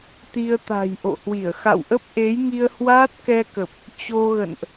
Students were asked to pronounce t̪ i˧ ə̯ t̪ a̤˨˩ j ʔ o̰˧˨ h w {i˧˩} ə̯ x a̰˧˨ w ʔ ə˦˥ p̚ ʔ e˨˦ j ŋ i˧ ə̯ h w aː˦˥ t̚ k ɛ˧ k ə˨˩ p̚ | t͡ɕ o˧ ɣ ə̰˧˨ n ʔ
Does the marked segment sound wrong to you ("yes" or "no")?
no